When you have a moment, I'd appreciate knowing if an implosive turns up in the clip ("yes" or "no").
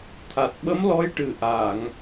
yes